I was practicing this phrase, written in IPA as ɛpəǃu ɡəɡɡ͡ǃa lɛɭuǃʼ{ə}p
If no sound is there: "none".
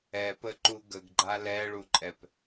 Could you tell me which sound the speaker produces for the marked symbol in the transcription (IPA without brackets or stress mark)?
ɛ